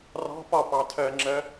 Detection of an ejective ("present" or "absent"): absent